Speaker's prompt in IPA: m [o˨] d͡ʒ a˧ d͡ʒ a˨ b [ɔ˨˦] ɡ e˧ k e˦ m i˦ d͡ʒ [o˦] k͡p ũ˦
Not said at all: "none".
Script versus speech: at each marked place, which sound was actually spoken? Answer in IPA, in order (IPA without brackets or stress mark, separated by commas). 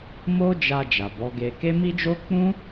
o˦, ɔ˨˦, o˦